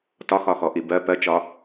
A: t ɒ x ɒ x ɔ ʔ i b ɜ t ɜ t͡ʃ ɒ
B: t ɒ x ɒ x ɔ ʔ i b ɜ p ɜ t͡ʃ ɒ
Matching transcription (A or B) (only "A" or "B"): B